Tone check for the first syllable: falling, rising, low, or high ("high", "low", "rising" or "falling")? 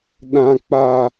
high